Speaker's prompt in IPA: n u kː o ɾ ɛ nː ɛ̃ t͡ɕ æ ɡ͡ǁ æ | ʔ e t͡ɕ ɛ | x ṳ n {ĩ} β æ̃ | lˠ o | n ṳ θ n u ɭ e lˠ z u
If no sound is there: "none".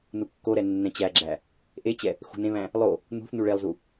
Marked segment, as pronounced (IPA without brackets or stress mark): ẽ